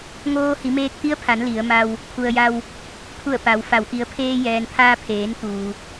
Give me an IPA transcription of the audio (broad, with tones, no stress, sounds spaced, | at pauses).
ŋ oː˧ h i˩˧ m eː˧ k̚ t̪ i˧˥ ə̯ pʰ a˩˧ n l i˩˧ ə̯ m a˧ w | pʰ u˩ ə̯ j a˧ w | pʰ u˧˩ ə̯ p a˩˧ w f a˩ w ʔ i˩˧ ə̯ pʰ eː˧ j ɛː˩ n pʰ aː˧ pʰ eː˩˧ n t̪ uː˩